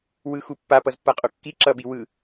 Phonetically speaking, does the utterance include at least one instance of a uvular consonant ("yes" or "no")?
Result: yes